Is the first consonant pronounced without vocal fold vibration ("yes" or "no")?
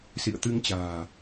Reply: yes